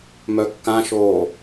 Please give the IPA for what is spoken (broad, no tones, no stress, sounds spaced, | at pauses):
m œ kː ã ʃ oː